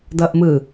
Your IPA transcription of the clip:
d ʌ ʔ m ɯ

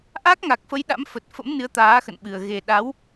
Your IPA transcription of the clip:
ʔ a˦˥ k̚ ŋ a˨˩ k̚ f ə˨˦ j ɗ a̰˧˥ m f ə˨˩ t̚ f ə̰˧˥ m n ɨ˨˦ ə̯ t̪ aː˨˦ x ə̰˧˨ n ɓ ɨ˨˩ ə̯ ɣ e˨˩ ɗ a˨˦ w

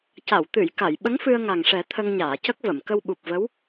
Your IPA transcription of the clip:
c a˨˩˨ w t̪ ɨ˨˩˨ j k a˨˩˨ j ɓ ə˧˥ ŋ f ɨ˧ ə̯ ŋ a˨˩ ŋ ʂ ɛ˨˩˦ t̪ʰ ə˧ ŋ ɲ aː˨˩˨ c ə˦˥ k̚ v ə˨˩˨ m k ə˧ w ɓ u˨˩ p̚ v ə˧˥ w

